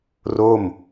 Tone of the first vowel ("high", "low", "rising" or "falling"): falling